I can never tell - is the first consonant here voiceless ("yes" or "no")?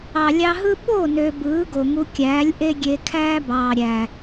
no